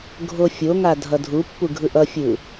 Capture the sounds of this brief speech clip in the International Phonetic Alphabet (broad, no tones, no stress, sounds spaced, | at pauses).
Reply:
ɡʱ o fʲ o ŋ a dʱ ʌ dʱ u pː u ɡʱ ɯ ʔ ʌ fʲ ɯ